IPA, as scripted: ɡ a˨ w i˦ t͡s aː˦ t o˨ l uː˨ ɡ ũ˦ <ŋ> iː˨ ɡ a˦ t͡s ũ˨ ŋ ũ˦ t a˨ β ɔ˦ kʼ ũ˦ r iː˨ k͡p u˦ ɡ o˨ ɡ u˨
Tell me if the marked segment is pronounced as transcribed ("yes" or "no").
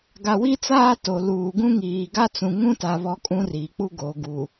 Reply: yes